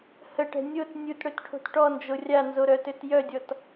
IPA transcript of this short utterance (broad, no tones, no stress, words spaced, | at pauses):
həʈɛ̤ nʲot nʲutɽøtʈʰo̤t ʈɔnd͡ʒo rʲanzoɾœtøt jœdʲɔt